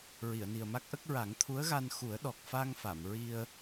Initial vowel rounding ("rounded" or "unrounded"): unrounded